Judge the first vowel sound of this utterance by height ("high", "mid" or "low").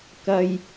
low